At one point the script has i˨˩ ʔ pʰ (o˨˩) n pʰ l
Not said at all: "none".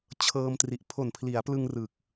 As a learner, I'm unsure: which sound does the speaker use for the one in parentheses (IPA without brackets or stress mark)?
o˨˩